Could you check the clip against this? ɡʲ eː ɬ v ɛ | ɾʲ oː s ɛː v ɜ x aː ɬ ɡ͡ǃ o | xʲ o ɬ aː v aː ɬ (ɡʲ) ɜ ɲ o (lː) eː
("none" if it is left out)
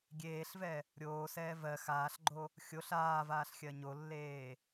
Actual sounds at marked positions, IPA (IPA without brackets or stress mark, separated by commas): xʲ, lː